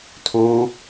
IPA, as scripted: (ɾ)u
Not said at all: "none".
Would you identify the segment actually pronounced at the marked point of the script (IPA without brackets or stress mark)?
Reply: tʰ